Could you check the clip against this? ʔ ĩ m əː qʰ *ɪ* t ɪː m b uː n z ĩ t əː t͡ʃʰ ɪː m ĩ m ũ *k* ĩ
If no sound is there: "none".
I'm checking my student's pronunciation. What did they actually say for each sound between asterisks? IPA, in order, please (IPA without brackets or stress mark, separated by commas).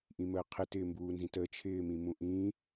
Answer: ɪ, ʔ